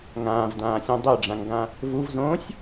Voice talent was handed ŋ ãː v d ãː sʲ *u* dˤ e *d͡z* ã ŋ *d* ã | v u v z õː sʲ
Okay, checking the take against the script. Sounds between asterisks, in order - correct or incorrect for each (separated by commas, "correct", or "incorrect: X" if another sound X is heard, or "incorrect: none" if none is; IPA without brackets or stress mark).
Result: incorrect: ũ, incorrect: ɖ͡ʐ, incorrect: ɡ